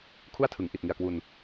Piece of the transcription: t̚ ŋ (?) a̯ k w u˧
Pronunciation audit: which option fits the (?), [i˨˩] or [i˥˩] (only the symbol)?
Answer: i˨˩